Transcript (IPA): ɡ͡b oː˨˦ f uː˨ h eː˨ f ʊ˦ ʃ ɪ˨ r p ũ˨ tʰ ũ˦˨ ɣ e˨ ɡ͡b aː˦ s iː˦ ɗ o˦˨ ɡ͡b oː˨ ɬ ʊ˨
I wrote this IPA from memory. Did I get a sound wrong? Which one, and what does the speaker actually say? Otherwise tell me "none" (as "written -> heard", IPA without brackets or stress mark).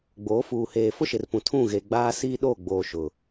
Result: ɬ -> ʃ